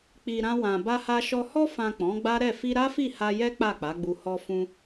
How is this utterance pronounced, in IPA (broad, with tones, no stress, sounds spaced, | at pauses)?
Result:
k͡p i˨ ɾ ã˧ w ã˨ b a˧ h a˧ ʃ ɔ˧ h ɔ˧ f ã˨ k͡p ɔ̃˨˦ ɡ͡b a˦ ɾ ɛ˦˨ f i˧ ɾ a˦ f i˦˨ h a˧ j ɛ˦ k͡p a˦˨ k͡p a˨˦ ɡ͡b u˧ h ɔ˧ f ũ˧